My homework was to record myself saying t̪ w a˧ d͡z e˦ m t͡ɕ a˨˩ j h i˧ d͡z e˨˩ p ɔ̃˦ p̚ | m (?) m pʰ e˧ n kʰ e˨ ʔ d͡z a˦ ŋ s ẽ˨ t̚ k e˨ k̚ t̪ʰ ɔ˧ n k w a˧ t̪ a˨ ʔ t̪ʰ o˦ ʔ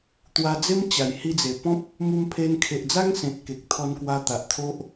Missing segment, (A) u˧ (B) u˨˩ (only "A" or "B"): A